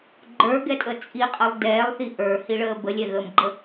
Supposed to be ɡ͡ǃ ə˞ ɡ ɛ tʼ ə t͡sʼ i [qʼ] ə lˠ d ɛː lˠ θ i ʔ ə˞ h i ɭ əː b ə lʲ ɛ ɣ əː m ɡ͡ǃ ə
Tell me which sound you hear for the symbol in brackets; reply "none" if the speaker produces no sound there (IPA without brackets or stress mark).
qʼ